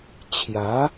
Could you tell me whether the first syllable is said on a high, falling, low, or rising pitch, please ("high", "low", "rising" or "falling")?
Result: rising